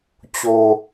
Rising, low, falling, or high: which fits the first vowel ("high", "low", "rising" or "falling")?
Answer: low